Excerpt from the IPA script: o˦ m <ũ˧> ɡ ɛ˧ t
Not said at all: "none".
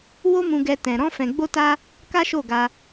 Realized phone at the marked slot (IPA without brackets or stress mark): ũ˧